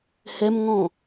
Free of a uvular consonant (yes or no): yes